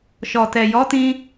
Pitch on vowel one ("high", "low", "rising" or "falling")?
low